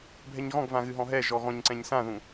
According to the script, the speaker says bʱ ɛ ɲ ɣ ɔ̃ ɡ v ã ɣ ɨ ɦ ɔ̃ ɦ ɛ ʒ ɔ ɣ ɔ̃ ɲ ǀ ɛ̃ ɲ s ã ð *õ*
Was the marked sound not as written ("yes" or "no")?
yes